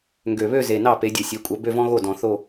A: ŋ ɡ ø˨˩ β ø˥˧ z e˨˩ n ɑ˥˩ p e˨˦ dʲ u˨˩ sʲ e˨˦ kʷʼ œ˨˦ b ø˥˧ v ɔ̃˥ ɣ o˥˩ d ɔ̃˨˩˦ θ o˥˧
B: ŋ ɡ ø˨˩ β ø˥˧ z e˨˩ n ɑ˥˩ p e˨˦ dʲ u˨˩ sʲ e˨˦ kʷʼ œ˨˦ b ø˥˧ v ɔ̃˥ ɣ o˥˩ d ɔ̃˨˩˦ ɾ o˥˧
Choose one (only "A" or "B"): A